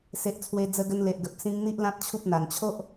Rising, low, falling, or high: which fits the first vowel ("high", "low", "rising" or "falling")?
low